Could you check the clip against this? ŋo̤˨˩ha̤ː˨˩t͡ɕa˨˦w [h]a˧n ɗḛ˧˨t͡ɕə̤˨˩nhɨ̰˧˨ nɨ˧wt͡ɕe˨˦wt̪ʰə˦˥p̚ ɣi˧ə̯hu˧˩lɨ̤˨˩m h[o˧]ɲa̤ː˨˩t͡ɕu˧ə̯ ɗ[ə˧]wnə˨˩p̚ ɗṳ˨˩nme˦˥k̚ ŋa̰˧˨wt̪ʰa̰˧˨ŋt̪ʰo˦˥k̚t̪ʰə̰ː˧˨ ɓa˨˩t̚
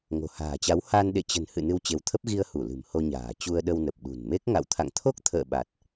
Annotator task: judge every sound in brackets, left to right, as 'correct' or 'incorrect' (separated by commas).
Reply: correct, correct, correct